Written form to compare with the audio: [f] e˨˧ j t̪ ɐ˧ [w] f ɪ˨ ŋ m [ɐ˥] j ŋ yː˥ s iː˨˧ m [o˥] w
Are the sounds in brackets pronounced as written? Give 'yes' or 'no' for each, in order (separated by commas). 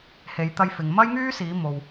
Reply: no, no, yes, no